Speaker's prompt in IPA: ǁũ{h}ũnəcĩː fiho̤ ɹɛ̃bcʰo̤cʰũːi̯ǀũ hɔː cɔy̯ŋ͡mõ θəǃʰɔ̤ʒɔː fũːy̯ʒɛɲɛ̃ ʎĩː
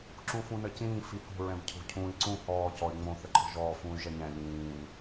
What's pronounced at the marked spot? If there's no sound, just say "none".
f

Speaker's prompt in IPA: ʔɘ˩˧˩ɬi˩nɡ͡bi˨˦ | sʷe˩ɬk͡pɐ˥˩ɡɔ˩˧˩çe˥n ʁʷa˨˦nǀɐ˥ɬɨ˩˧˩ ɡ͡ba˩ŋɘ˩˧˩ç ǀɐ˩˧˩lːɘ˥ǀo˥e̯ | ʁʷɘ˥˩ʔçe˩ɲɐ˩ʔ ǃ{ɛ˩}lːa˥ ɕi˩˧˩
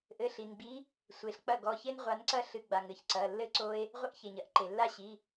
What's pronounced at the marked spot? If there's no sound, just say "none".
e˩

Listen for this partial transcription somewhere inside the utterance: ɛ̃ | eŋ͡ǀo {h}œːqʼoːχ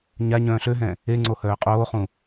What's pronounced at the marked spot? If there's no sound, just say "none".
h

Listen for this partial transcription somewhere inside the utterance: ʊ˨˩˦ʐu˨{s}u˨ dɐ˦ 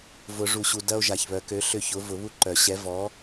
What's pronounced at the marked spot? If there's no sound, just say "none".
ɕ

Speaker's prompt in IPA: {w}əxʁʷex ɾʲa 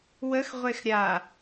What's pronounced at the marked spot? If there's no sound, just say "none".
w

